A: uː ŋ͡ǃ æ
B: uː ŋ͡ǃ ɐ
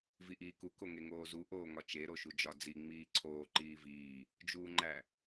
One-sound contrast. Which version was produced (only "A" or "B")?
A